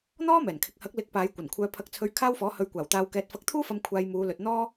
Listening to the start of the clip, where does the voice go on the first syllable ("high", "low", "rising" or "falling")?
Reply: high